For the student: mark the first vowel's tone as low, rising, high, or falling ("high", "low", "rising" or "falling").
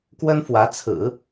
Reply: high